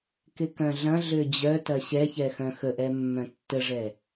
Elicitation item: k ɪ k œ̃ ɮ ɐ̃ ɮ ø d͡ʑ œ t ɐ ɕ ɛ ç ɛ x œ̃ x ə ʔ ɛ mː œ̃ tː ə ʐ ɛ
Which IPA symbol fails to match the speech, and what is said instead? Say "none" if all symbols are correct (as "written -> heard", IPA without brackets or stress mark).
none